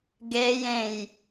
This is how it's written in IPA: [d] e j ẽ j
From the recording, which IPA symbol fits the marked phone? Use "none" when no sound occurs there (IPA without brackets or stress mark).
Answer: ɡ